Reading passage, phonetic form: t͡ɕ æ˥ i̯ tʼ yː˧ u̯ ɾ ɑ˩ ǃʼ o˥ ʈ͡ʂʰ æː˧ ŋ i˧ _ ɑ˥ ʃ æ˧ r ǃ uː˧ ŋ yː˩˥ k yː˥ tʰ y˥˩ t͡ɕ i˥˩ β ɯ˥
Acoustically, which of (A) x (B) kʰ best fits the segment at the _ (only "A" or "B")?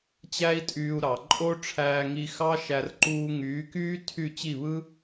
A